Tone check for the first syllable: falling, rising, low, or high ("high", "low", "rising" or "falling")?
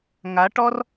rising